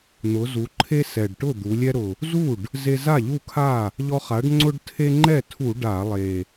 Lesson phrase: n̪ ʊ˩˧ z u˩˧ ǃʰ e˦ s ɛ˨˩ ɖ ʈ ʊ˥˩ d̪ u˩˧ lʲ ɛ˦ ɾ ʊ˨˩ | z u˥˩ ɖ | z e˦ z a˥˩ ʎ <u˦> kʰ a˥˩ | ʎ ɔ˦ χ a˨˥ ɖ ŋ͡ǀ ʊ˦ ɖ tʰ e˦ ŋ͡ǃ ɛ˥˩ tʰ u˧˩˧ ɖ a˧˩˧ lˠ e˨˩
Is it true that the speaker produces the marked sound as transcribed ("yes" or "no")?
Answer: no